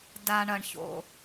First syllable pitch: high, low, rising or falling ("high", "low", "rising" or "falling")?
low